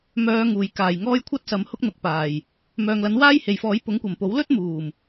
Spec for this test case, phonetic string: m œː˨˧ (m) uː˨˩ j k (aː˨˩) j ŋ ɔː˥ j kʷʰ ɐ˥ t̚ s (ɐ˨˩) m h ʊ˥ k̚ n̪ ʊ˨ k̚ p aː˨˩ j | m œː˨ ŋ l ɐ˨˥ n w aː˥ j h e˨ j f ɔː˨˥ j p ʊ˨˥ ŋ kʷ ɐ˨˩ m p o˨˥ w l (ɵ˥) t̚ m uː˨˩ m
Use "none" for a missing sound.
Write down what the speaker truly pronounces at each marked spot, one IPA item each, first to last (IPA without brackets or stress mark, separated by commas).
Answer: ŋ, aː˨˩, ɐ˨, ɵ˥